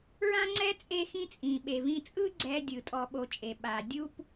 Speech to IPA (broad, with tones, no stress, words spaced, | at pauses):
ɹã˦ŋ͡ǀɛ˦ t͡sʼe˦xĩ˦ t͡sʼĩ˩ɓe˩vĩ˨t͡sʼɯ˦ ɡ͡ǀɛ˨dʲɯ˩ tʼɔ˨ɓo˨t͡ʃʼe˩ ɓa˩ dʲu˦p